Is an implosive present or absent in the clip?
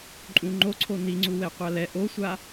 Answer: absent